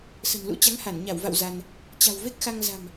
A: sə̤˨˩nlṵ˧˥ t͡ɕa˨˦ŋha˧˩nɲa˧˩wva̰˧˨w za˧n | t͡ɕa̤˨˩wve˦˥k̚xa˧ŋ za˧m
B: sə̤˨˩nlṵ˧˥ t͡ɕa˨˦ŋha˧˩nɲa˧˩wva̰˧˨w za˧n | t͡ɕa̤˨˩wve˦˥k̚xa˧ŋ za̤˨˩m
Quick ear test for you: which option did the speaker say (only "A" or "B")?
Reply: B